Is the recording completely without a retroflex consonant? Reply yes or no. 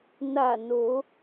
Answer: yes